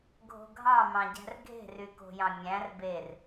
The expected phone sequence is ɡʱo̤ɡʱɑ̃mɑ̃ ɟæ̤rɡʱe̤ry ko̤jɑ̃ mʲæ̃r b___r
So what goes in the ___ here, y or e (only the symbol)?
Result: e